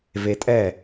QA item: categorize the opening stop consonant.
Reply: ejective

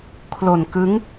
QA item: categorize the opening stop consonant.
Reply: aspirated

